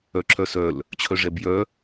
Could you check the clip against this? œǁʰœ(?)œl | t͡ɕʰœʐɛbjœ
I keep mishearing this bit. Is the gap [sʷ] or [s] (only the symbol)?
s